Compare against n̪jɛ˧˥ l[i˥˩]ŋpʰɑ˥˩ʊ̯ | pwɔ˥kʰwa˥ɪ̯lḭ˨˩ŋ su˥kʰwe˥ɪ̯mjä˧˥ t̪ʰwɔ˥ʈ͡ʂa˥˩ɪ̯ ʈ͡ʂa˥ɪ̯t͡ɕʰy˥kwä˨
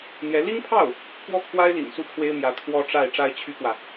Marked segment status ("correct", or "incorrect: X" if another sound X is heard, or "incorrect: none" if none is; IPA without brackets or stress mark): incorrect: i˥